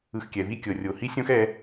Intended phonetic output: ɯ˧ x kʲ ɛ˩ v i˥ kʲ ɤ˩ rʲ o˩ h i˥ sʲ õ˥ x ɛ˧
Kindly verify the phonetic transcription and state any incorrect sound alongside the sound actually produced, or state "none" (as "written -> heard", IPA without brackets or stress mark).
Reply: none